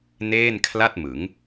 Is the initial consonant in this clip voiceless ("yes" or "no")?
no